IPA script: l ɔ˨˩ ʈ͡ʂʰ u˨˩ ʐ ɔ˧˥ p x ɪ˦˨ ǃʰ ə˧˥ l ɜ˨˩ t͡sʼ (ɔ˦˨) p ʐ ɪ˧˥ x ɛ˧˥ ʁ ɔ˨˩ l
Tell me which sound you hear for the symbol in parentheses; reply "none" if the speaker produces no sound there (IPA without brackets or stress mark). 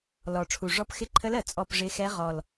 ɔ˦˨